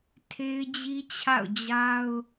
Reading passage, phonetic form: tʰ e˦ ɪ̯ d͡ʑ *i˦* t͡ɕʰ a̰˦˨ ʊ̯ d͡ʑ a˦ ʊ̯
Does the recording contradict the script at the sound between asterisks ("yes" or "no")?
no